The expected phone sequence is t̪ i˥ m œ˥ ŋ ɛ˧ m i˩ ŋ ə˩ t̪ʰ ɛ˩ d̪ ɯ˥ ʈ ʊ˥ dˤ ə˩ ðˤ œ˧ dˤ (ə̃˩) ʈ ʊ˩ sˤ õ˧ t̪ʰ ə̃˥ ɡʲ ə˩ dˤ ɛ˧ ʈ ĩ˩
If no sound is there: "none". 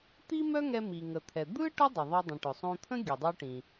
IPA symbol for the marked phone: ə̃˩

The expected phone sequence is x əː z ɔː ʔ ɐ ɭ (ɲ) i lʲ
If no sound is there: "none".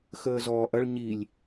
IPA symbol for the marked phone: ɲ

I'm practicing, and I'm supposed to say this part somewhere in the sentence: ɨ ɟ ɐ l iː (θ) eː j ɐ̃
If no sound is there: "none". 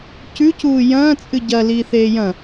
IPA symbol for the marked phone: θ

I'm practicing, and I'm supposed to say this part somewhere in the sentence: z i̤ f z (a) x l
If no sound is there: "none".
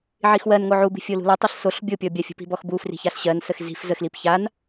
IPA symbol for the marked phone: ə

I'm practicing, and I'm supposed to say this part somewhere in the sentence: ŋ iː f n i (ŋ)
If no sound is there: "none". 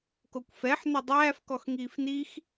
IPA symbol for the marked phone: x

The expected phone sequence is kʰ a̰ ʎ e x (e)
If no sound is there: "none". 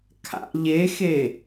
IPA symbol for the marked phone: e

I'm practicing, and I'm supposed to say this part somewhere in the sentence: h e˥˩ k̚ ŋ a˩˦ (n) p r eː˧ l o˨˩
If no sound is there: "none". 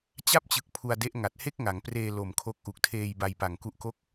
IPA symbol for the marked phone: ŋ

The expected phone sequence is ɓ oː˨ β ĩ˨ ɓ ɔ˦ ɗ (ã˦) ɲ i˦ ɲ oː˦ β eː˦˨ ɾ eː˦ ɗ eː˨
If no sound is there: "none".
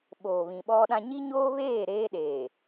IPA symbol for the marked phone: ã˦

